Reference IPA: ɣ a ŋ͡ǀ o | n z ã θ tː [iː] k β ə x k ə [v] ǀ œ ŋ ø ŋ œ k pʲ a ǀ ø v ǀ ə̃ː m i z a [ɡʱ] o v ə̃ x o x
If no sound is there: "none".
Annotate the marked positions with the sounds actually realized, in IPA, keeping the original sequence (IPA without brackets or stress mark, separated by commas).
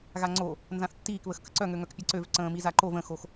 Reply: iː, none, ǃ